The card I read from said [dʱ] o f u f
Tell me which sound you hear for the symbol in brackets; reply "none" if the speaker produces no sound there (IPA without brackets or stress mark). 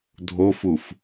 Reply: dʱ